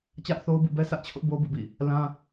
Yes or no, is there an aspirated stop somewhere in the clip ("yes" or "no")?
yes